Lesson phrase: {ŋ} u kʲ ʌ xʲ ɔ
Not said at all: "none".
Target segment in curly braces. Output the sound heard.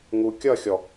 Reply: ŋ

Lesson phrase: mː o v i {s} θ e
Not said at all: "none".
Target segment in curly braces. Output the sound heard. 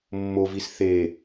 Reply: s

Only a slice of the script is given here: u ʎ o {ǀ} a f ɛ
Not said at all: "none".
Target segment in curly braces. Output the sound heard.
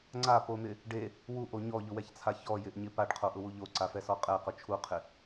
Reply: ǀ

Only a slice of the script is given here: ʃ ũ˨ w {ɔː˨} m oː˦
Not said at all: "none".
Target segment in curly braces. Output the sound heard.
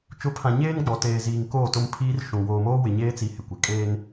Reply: oː˨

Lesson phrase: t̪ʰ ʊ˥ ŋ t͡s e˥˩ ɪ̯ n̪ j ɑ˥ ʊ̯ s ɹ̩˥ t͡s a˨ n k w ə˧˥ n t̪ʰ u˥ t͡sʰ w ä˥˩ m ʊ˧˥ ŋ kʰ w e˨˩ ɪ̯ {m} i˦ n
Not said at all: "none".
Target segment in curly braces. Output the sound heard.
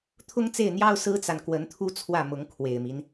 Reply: m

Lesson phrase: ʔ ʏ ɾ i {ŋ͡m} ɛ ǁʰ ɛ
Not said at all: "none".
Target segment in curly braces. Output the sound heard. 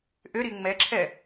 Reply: ŋ͡m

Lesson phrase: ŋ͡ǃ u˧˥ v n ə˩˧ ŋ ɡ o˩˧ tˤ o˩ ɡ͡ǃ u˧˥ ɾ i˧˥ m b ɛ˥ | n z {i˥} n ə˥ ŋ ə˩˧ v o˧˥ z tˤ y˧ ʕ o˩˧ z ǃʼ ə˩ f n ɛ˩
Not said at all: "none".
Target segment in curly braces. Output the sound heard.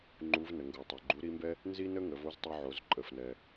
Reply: i˥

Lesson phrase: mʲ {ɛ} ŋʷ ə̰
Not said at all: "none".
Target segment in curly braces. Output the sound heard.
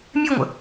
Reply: ɛ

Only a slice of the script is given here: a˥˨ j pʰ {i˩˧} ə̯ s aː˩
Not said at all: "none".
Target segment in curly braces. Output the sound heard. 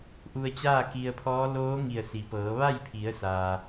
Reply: i˩˧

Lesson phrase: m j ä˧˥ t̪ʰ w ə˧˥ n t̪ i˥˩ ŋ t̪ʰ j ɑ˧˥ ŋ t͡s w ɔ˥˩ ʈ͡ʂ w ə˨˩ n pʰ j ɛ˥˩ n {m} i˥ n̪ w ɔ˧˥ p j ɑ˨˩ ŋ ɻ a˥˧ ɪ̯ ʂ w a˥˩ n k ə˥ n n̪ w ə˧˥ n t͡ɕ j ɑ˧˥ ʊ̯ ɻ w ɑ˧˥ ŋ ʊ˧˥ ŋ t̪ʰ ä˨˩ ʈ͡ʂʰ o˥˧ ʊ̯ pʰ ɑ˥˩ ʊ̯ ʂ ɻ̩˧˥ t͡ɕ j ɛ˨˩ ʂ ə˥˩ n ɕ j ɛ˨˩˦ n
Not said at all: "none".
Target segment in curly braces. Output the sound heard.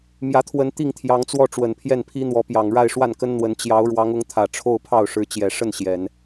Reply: pʰ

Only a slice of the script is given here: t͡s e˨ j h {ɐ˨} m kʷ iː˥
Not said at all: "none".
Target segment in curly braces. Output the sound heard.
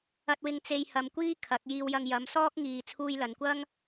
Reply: ɐ˨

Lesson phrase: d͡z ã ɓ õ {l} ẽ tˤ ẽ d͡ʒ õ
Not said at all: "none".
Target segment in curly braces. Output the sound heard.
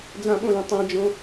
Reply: l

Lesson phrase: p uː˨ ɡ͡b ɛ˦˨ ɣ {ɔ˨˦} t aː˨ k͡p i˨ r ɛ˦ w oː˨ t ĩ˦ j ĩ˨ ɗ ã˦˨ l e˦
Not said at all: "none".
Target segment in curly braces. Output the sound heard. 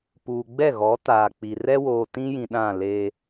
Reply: ɔ˨˦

